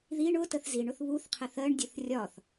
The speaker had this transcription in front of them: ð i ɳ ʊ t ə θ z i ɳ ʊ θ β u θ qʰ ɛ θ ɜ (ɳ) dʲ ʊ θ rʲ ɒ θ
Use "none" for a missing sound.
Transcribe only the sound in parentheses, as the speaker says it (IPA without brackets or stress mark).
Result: ɳ